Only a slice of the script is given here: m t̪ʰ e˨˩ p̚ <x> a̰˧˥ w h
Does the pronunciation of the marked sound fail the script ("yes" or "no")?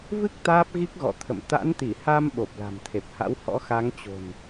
yes